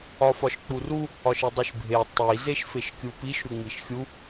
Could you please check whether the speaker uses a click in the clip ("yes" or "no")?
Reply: no